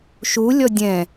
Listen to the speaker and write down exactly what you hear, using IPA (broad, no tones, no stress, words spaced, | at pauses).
ʃu lʲɔdʲɛ̃